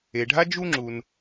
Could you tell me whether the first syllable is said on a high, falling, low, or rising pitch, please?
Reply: low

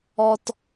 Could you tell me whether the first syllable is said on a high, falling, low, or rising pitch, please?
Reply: high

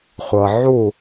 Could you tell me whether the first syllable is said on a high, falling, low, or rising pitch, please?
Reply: low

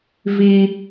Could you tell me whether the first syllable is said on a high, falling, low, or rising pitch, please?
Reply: high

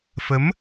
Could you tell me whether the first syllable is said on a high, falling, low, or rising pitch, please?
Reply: rising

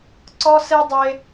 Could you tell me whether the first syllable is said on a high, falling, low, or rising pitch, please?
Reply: high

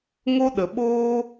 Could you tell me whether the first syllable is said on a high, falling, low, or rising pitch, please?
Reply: high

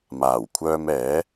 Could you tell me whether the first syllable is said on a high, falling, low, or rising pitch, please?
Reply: low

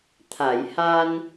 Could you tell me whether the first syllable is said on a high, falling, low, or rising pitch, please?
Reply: low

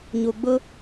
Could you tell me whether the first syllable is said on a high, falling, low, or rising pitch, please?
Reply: low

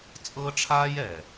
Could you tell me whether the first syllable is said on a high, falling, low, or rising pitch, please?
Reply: high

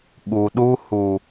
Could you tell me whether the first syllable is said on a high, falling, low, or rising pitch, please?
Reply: low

